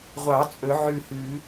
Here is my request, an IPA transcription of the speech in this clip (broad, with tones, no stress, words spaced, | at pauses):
ʁʷɑ˨˩˦ t͡sʼɵ˨˩˦ʕʉ˧˩hʉ˨˩˦